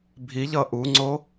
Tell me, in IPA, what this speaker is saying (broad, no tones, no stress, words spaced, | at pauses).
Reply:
bʱiʎʌ ʔuŋ͡ǀo